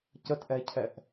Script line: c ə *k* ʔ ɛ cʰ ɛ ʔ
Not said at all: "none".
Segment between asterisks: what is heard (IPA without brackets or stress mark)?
t